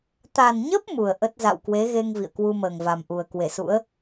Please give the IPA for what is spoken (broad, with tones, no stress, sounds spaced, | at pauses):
t̪ a˨˩ n ɲ ə˦˥ p̚ m u˨˩ ə̯ ʔ ə˦˥ t̚ z a̰˧˨ w k w e˨˦ ɣ e˧ ŋ v ḭ˧˨ ə̯ k w u˧ m əː˨˩ ŋ v a˨˩ m ʔ u˨˩ ə̯ k w e˧˩ s ṵ˧˥ ə̯